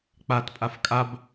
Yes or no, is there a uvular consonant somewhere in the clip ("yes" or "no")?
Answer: no